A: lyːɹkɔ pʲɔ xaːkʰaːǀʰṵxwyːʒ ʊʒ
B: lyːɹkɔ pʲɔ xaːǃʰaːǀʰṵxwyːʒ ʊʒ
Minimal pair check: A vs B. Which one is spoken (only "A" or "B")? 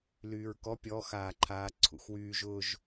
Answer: B